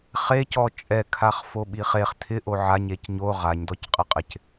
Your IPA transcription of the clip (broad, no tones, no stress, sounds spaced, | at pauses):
χ e c ɔ t͡ʃʼ ɛ kʰ a χ f o ɓ i χ e χ tʰ ɪ ʔ o ʕ a ɲ e c ɲ o ʁ a ɲ d ɔ c qʼ ɪ qʼ ɪ c